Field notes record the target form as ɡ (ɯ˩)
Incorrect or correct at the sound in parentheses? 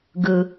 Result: correct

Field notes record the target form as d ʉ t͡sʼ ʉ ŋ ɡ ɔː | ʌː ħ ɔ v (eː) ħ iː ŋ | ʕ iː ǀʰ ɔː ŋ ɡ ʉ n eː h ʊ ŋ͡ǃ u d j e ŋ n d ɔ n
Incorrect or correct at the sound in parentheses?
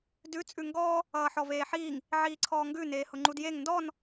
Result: correct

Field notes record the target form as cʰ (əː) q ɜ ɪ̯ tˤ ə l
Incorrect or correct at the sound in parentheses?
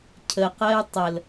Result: incorrect: ə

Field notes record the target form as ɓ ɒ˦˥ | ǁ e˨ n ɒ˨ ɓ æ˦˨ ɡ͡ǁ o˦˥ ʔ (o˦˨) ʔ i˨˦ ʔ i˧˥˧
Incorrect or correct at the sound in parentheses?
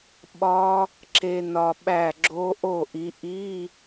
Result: correct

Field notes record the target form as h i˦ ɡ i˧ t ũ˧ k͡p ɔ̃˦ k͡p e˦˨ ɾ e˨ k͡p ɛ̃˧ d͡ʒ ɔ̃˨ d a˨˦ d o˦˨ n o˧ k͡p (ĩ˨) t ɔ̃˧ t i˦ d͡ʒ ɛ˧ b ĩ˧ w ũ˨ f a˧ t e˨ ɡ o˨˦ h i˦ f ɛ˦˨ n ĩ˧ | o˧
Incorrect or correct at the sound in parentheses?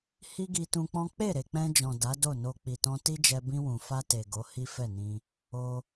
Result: incorrect: i˨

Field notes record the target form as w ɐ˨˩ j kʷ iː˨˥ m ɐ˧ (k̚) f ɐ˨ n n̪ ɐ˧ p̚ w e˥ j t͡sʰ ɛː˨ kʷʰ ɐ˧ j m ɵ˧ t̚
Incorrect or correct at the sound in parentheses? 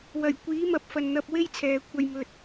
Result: incorrect: p̚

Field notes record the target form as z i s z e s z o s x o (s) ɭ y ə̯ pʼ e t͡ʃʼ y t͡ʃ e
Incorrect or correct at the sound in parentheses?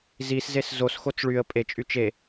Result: incorrect: t͡s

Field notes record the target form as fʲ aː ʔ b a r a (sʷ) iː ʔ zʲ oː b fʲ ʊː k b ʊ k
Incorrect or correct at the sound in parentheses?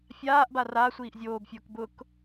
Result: correct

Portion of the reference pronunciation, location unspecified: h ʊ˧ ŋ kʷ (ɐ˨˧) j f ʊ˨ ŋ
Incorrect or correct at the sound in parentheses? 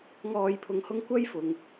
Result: incorrect: ɐ˥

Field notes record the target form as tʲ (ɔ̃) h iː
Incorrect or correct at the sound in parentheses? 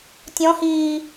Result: correct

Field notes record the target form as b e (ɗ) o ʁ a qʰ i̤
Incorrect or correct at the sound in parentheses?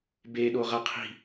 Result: correct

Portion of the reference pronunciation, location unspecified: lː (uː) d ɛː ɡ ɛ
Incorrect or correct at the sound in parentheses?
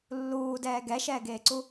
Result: correct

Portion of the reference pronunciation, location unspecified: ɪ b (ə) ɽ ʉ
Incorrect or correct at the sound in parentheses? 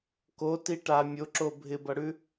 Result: incorrect: ʌ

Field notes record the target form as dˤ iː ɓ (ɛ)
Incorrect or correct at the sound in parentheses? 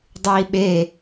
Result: incorrect: e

